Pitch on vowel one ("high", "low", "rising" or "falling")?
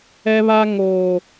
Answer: high